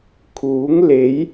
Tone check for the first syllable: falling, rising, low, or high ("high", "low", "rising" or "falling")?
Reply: rising